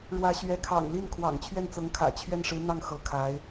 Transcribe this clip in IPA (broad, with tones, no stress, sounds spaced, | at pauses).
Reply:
ɻ w ä˧˥ ɕ ɥ ɛ˧˥ kʰ ɑ̰˨˩ ŋ l i˥˩ n kʰ w ɑ̰˨˩ ŋ t͡ɕʰ ɥ ɛ˥˩ n t͡s ɤ˧˥ ŋ kʰ ä̰˨˩ t͡ɕʰ ɥ ɛ˥˩ n ʂ ɻ̩˧˥ n̪ ɑ˥˩ ŋ x ɤ˧˥ kʰ a˧˥ ɪ̯